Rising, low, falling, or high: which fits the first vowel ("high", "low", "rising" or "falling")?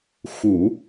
low